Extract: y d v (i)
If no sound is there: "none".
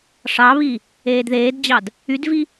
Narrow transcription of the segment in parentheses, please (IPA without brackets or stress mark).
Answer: i